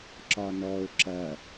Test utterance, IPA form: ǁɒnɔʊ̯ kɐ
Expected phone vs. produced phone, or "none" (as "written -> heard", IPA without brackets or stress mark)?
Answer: k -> ǁ